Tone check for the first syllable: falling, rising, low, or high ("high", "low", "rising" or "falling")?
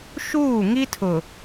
falling